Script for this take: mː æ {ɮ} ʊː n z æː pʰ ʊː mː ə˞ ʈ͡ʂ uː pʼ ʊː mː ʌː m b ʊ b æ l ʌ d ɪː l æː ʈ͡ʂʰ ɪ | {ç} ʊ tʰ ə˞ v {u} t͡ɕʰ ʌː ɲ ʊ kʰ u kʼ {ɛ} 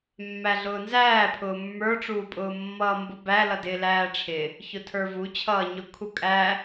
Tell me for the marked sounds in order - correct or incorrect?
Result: correct, correct, correct, incorrect

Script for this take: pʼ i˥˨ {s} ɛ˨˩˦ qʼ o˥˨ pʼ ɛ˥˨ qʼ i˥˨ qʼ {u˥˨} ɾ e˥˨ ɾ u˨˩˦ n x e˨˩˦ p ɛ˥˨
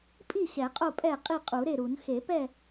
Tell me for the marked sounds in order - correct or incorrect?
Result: incorrect, incorrect

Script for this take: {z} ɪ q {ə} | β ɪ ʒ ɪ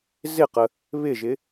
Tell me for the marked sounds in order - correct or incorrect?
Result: correct, correct

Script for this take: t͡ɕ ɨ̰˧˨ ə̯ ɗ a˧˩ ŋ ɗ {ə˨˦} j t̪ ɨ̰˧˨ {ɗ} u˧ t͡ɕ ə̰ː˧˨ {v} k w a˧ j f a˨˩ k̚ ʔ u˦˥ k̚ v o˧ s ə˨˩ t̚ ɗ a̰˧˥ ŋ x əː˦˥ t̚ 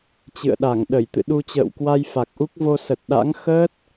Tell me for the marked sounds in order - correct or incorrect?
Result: incorrect, correct, incorrect

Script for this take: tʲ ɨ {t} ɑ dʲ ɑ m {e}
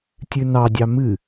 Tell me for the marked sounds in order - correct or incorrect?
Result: incorrect, incorrect

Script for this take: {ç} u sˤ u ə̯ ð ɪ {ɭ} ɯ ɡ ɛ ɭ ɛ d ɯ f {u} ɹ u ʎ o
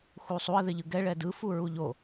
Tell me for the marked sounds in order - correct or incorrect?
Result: incorrect, incorrect, correct

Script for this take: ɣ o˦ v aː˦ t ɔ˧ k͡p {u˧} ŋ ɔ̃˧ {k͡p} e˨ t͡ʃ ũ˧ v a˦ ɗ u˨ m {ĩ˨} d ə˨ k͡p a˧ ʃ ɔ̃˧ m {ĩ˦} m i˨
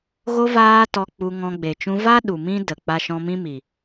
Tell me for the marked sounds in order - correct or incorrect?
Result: correct, incorrect, incorrect, correct

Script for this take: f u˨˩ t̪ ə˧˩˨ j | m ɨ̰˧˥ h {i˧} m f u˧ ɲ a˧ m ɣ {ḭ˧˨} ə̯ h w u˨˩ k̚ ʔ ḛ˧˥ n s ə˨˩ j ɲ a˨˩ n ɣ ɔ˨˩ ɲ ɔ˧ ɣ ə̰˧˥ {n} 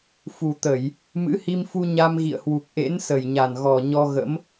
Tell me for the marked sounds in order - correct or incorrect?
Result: correct, correct, incorrect

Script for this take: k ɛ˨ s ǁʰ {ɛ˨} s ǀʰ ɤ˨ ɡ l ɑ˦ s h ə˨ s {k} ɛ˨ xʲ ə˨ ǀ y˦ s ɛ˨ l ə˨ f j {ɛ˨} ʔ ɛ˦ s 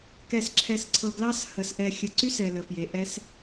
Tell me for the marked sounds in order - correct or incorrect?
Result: correct, incorrect, incorrect

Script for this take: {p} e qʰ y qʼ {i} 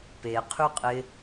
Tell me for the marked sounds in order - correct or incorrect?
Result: correct, incorrect

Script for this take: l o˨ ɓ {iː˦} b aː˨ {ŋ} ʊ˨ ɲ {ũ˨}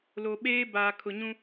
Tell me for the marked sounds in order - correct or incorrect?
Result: incorrect, incorrect, incorrect

